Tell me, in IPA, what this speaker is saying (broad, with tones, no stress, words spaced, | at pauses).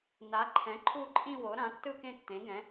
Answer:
na˩˥ǃʰɛ̃˩˥ ǃʰu˥˧ǃʼĩ˥˧wo˩˥ ɾã˩˥tːɯ˥˧ kẽ˥˧tːẽ˩˥ɡɛ̃˩˥